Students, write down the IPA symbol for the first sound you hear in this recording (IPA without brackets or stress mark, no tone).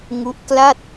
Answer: ŋ